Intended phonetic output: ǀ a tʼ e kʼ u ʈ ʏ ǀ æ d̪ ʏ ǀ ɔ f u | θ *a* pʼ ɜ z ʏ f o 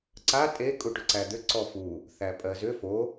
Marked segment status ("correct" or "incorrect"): incorrect